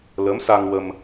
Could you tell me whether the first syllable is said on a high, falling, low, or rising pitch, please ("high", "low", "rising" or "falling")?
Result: rising